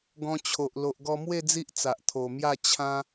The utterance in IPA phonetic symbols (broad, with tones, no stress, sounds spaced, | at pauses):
ɡ ɔ̃˧ t͡ɕʰ o˨ ʔ l o˨ ʔ ɡ ɔ˧ m w e˥˧ d͡z i˦ ʔ t͡s a˨ ʔ t̪ʰ o˨˩ m j a˥˧ t͡ɕʰ ã˧